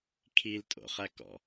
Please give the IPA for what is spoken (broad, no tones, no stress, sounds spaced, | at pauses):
kʰ i l tʼ o̰ χ æ k ɔ̰